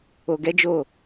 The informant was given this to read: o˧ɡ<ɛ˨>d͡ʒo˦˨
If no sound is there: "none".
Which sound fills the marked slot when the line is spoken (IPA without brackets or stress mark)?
ɛ˦